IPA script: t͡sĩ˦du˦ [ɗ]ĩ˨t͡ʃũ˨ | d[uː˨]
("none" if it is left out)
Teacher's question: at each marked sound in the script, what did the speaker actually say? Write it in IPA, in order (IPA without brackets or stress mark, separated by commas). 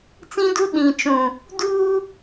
ɗ, uː˦